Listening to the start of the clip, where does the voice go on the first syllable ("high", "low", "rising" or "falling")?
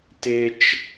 high